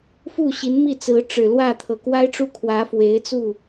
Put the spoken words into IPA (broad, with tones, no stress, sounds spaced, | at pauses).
f u˥˩ ɕ i˧˥ n m i˥˩ t͡s ɹ̩˧˥ ʈ͡ʂ ɻ̩˨˩ l w ä˥˩ t̪ʰ ɤ˨˩ k w a˥ ɪ̯ ʈ͡ʂ u˥˩ kʰ w ä˧˥ f w e˧˥ ɪ̯ t͡s u˥˩